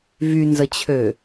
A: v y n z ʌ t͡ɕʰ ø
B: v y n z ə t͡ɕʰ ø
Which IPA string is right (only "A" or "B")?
B